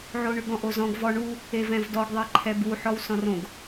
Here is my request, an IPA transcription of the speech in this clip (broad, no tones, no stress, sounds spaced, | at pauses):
ʕ o ɳ ʉ ɡ ɔ̃ ʔ o z ɔ̃ ɡ v ɔ ɳ u | e v ɛ̃ v d ɔ ɡ ðˤ e ǃʰ ɛ b u ħ ɔ w s ɔ̃ r õ ɡ